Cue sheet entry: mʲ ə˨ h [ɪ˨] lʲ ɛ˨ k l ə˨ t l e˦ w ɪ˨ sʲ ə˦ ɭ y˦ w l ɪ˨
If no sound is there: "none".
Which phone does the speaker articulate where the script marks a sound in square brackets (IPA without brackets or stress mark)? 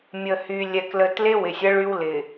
y˨